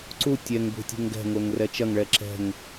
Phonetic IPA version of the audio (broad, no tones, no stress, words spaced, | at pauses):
ǀu tʲɛŋbṳ tʲṳŋɡɛ̤ŋoŋ rɛt͡ʃɐŋɭɛ ǁɛ̤ŋ